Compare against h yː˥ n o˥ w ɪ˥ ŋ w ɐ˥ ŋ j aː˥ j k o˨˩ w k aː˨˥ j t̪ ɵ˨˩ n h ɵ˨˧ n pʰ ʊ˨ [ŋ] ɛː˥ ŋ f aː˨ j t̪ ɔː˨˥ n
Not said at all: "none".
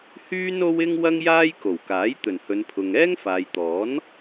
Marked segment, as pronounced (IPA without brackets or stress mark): ŋ